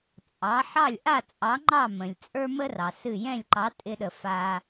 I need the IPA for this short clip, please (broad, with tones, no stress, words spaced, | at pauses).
t͡sʼɑ˩˥ ħɑ˥˩lʲ ʔa˥˩t͡sʼɑ˩˥ŋ͡ǃɑ˥˩ mə̃˩lʲt͡sʼə˞˥mə˥ rɑ˩sɨ˥˩ jɛ̃˥˩lʲǃɑ˩˥ tʼɪ˧ɗə˩ fa˧